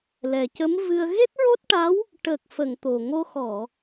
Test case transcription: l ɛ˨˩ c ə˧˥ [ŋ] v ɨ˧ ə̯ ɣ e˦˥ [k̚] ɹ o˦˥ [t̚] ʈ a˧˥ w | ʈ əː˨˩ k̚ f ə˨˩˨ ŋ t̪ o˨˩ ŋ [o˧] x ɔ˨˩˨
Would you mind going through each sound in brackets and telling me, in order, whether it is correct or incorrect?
incorrect: m, incorrect: t̚, correct, correct

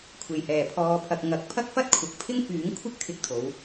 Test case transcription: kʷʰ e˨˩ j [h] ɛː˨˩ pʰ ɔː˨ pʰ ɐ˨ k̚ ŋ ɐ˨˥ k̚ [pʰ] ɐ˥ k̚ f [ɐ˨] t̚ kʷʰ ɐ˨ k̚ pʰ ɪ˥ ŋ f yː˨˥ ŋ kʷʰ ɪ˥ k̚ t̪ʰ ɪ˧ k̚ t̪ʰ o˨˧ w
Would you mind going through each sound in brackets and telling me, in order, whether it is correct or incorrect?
correct, correct, incorrect: ɐ˥

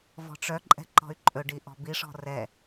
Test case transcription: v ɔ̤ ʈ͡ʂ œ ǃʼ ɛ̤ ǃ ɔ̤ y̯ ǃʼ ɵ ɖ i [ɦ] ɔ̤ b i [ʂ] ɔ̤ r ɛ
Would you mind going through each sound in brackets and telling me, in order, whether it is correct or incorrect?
incorrect: ʔ, correct

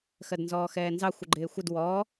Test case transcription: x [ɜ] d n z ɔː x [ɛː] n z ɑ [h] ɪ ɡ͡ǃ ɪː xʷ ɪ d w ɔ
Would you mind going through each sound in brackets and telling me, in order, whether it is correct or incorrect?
correct, correct, incorrect: xʷ

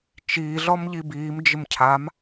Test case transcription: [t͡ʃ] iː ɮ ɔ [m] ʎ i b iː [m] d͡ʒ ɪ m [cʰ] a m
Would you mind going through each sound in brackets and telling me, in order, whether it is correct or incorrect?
correct, correct, correct, correct

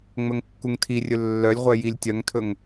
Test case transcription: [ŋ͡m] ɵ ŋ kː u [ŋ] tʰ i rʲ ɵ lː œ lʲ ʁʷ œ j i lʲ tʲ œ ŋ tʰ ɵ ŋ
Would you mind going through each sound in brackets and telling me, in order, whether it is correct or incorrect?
correct, correct

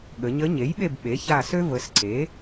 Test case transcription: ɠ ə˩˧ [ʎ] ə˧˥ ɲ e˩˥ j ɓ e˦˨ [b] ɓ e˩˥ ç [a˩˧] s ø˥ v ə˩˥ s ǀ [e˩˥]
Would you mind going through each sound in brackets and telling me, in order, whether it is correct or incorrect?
incorrect: ɲ, correct, incorrect: a˦˨, correct

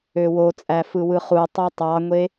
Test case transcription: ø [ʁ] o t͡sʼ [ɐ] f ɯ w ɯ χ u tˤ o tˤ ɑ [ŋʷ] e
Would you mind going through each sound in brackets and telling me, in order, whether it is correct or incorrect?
incorrect: w, incorrect: æ, correct

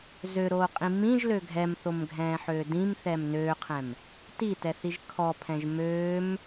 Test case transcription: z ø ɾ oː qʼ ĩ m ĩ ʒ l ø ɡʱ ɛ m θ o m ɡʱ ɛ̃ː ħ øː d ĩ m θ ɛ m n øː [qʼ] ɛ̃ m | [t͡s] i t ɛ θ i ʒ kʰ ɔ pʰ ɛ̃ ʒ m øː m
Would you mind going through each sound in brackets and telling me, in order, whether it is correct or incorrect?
incorrect: qʰ, incorrect: t

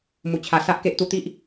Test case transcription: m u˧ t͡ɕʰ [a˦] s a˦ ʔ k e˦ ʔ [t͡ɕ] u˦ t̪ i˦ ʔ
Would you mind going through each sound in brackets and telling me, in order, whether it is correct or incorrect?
incorrect: a˧, incorrect: t̪

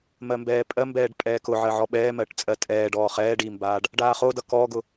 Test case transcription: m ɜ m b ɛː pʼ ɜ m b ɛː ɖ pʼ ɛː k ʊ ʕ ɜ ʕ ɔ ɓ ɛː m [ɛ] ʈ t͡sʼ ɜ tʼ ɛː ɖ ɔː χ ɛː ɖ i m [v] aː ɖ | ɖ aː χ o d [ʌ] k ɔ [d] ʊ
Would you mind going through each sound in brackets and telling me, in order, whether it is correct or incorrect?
incorrect: ɜ, incorrect: b, correct, incorrect: ɡ

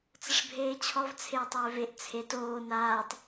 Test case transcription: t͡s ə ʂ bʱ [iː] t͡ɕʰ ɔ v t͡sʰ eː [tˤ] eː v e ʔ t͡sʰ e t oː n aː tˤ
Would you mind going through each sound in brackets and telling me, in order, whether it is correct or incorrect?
incorrect: eː, correct

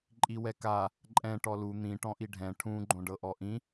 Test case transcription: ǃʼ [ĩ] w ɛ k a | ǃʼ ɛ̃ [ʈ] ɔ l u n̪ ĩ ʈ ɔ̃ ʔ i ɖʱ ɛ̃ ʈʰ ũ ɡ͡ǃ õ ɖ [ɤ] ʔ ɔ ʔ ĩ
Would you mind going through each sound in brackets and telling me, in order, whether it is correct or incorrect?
incorrect: i, correct, correct

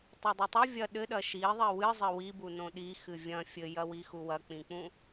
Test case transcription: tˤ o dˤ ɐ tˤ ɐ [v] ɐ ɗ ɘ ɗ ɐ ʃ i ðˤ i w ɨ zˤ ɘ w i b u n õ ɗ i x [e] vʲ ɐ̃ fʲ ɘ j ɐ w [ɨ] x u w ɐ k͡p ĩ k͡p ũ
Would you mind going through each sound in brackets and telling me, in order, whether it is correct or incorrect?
incorrect: vʲ, incorrect: ɨ, incorrect: i

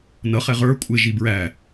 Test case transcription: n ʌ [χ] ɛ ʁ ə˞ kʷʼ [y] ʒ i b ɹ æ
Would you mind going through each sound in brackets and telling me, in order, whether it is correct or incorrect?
correct, incorrect: ɪ

